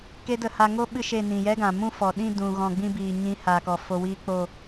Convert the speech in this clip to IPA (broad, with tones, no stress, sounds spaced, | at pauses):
k e˦ d ə˧ h a˧ ŋ o˦ ɓ ɨ˦ ʃ e˦˨ n ĩ˨ j ɛ˦ ɡ ã˨ m ũ˦ f ɔ˨ ɗ ĩ˦˨ d ũ˧ ɣ ɔ̃˨ ɡ͡b ĩ˧ b iː˨ ɲ ĩ˨˦ h a˨ k ɔ˨ f o˧ w iː˦ k͡p o˦˨